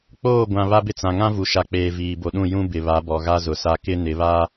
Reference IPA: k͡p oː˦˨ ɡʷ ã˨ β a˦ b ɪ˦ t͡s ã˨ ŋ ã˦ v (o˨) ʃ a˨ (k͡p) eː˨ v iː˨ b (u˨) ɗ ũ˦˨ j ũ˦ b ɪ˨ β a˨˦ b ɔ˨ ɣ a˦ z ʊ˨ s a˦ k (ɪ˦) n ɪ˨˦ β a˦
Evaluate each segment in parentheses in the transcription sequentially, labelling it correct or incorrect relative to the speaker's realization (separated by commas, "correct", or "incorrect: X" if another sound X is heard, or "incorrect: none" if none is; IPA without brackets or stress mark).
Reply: incorrect: u˨, correct, incorrect: o˨, correct